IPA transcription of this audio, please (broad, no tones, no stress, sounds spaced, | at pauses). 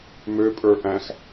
m ø pʼ ə˞ ʔ æ̃ x